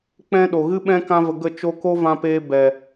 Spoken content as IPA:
k͡pɛ̃˧ ɗo˨ɣɨ˦ɓɛ̃˦ kã˦və˧ɡə˦˨ t͡ʃo˧ko˦vã˧peː˧ bɛ˨

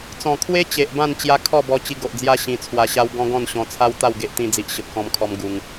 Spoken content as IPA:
t͡sɔ̃˨˩kʰwe˦ t͡ɕe˨ʔbã˥˧n t͡ɕja˦ kʰɔ˥˧bɔ˧ t͡ɕi˧ɡo˨ʔd͡zja˦ ɕĩ˧t͡sʰwa˧ɕa˦w ɡɔ̃˦ɡɔ̃˥˧nɕɔ̃˧t͡sʰa˦w t̪a˥˧wɡe˦ʔt̪ĩ˧d͡zi˨ʔ ɕə˨p̚kɔ̃˧mkʰɔ˧m ɡu˧ŋ

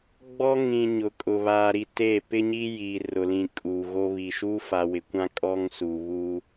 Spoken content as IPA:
ɡ͡bɔ˦ŋĩ˨ ɲʊ˨kʼʊ˨ βaː˨ɾi˨teː˦˨ pɪ˦ɲi˦ jiː˨rʊ˨lĩ˨ kʼuː˨ ɣo˦βi˨ ʃuː˦fa˨ wɪ˨kʷã˦ kʼɔ˦ŋsuː˨βuː˦

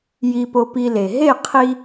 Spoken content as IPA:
ji˧po˧pi˧le˨ ɦe˦˨qʰi˧

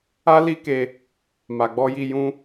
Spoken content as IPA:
a˦li˦ke˧ | ma˨ɡ͡bɔ˧ji˧ jũ˦

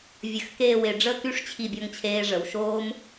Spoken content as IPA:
vʲə˧˩xkeː˥˧we˧ ɖ͡ʐə˥˧ky˥ʂ t͡ɕʰi˥˧bʲɔ˥ŋt͡ɕʰeː˥ ʐə˩˧wʃoː˥m

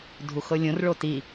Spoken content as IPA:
dʱuxɤlʲõr ɭoti

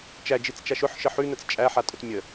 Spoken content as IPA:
t͡ʃæd͡ʒit͡st͡ʃaʃ ʊħʃə ħʉnət͡s t͡ʃʼæħatʼʊt mʲə

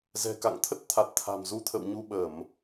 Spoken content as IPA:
zɛ̤˨˩ka̰˧˨ŋt̪ʰə˦˥t̚t̪ʰa˨˩t̚ t̪ʰa̤˨˩mzu˧t̪ʰə̰˧˨wɲu˧ ɓə˧˩˨m

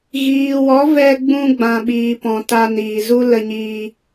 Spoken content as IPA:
ɣiː˨wɔ˨˦ vɛ˧ ɡ͡bũ˧ ɡ͡bã˨ɓiː˨pɔ̃˨ ta˧niː˨zu˦ lə˧ɲiː˧

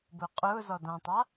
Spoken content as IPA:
bʊːqʼʊː zɔdãtˤa

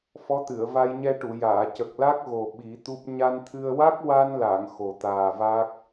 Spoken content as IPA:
fɔ˧˥t̪ɨ˨˩˨ə̯va˧jɲɛ˧ ʈu˨˩˨jaː˨˩˨ cə˨˩k̚la˦˥k̚ ɣo˨˩ ɓi˨˩˦t̪u˦˥p̚ ɲa˧nt̪ʰɨ˧ə̯ wa˦˥k̚wa˧nla˨˩˨ŋ xo˨˩ t̪aː˨˩va˦˥k̚

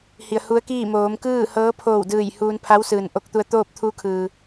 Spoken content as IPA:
hi˩ə̯hu˧˥ə̯kiː˥˨ moː˩˧mkɯː˥˨ hɤː˧˥pʰoː˧˩w dɯː˧˩jhuː˧npʰa˧˥wsɯː˩n ʔo˧k̚t̪u˧ə̯t̪oː˥˨p̚ t̪ʰuː˧˥kʰɯː˩

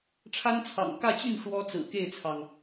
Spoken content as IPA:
ʈ͡ʂʰa˥nt͡sʰɑ̰˨˩ŋkä˥˧t͡ɕy˥˩n ʂwɔ˥t͡sɹ̩˨˩ke˥˩ɪ̯t͡sʰɑ˩ŋ

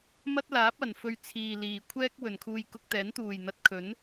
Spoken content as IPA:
mɐ˥t̚ laː˨˥p̚ɐ˨˩n fɵ˨ɥ t͡sʰiː˨liː˨kʷʰɛː˥k̚ wɵ˨˩nkʰuː˧j kʊ˧k̚t̪ɛː˨˥n t̪uː˨˩jn̪ɐ˨˥t̚kʰɵ˨˥n

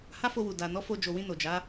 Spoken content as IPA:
ha˦fo˧ wu˨da˨ nɔ˨˦fo˧d͡ʒo˨wĩ˧ no˨d͡ʒa˨˦

